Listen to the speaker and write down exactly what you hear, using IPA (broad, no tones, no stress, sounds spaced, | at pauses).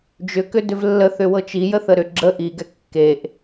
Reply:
d͡ʒ ʏ k ʏ d ʏ v lː ə θ ʏ w ɤ t͡ʃ i j ə θ ə ɾ ʏ ɡ͡ǁ ə ʔ i ɡ ɛ kː e ʔ